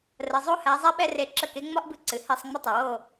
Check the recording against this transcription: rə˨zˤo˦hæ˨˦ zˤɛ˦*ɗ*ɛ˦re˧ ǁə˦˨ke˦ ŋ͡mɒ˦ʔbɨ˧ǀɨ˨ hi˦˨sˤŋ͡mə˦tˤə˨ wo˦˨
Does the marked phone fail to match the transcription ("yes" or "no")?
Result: yes